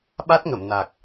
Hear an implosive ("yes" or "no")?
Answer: yes